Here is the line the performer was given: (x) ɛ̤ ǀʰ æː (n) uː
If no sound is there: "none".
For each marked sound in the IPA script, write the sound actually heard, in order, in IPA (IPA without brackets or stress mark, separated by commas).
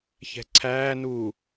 ç, n